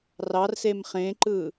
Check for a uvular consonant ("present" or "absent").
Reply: present